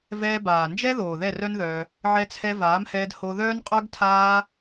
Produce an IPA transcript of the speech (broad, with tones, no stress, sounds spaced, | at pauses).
v ɛː˧ b aː˨ n d͡ʒ ɛ˦ ð oː˨ ð ɛ˦˨ r œ˦ n ð œː˧ | ʕ ɛ˧ t͡sʰ ɛ˧ v aː˨˦ m h ɛː˧ d h o˧ ð œː˦ n qʼ œ˦ ɡ tʰ aː˦